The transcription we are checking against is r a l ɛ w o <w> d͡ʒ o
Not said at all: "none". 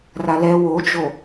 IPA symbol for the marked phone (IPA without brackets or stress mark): none